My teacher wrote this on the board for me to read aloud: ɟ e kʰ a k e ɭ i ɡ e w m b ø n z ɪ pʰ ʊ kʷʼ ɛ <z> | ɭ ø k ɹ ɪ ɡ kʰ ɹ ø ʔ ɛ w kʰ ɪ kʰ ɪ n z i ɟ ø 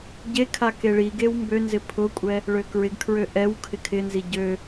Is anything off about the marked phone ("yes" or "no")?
yes